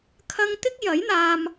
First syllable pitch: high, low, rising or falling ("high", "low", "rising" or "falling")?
high